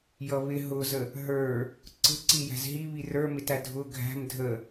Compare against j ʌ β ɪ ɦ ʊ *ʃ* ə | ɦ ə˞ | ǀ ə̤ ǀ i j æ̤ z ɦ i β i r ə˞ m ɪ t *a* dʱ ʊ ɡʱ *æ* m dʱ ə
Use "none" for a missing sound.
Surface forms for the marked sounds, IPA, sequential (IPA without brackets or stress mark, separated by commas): z, æ, æ̤